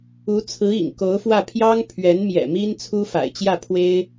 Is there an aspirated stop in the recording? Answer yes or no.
yes